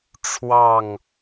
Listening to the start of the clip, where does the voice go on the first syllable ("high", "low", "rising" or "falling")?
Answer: falling